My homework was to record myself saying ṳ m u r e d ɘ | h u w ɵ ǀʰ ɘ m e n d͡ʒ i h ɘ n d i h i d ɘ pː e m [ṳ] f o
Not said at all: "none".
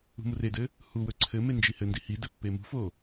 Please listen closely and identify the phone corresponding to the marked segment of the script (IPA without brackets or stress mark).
ṳ